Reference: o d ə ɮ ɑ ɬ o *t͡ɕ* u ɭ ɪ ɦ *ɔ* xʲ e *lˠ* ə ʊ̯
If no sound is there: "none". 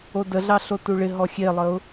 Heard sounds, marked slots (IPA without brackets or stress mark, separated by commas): t, ɔ, lˠ